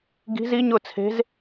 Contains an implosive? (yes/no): no